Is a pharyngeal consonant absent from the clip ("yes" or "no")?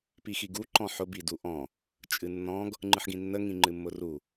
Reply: no